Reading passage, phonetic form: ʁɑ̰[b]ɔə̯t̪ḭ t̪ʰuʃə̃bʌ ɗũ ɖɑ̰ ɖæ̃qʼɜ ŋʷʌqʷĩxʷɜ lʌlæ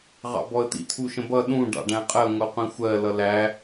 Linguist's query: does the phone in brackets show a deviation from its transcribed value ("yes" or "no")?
no